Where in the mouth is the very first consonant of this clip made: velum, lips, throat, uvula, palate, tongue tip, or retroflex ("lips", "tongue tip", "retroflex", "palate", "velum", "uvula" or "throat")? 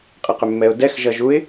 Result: uvula